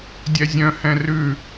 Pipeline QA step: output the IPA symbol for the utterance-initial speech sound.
dʲ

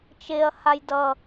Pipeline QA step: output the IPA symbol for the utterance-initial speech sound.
t͡ʃ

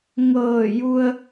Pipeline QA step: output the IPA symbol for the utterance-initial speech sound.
ŋ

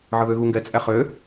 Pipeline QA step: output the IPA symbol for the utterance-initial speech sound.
ʕ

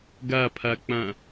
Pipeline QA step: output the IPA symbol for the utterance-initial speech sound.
ɡ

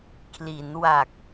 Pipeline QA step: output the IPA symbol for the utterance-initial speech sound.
kʰ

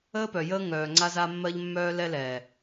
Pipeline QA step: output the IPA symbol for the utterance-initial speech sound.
əː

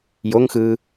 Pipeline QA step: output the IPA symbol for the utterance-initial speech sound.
j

